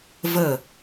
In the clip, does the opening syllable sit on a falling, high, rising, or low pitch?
falling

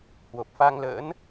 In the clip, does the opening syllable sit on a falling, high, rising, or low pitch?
low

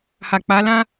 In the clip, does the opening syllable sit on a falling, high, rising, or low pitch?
low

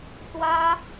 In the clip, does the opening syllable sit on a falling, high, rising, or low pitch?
high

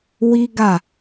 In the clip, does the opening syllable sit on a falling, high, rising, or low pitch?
high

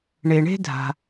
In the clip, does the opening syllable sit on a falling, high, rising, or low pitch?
low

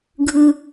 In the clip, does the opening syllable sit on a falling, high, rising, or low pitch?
low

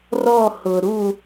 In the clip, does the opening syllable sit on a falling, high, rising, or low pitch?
falling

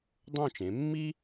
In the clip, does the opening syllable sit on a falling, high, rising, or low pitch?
falling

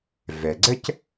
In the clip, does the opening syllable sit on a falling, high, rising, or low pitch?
low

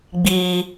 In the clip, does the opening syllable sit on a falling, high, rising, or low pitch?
high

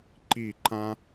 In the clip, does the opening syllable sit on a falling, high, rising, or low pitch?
falling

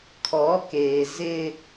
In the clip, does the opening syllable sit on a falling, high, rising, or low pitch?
rising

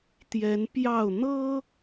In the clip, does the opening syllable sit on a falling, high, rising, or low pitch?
rising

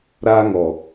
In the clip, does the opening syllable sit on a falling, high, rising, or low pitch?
high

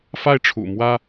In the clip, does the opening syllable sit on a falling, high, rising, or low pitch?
high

